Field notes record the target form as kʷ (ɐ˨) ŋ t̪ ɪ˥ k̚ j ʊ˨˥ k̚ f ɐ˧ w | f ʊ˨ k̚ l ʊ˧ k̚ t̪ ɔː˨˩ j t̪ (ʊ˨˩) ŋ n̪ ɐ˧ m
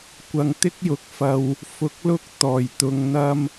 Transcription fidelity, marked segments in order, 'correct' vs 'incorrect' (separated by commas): incorrect, incorrect